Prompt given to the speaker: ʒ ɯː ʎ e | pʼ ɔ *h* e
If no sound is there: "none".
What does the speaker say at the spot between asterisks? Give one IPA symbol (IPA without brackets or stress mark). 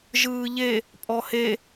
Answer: h